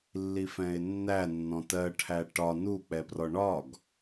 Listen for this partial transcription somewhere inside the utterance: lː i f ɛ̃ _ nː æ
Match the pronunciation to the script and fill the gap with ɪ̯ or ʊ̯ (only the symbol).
ɪ̯